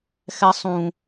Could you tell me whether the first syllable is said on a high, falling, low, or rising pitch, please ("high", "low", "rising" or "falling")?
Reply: high